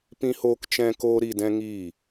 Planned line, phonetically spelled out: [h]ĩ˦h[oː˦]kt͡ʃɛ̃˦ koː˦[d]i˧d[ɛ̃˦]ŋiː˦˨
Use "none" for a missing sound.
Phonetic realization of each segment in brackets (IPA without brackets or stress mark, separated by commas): p, oː˦, ɾ, ɛ̃˦